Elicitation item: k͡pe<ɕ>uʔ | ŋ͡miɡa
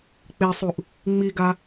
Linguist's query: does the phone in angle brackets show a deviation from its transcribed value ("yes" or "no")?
yes